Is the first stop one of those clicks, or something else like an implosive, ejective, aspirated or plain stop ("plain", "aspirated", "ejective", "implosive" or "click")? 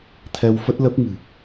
aspirated